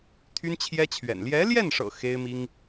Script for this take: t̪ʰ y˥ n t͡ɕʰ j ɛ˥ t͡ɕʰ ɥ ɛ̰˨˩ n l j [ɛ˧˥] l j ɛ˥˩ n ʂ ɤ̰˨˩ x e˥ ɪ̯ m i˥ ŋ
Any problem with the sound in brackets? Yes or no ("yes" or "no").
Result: no